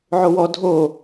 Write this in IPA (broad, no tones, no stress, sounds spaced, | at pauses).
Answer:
ʕ o w ɔ dʱ o